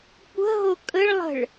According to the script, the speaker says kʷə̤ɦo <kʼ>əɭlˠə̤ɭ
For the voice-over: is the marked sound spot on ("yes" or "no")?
yes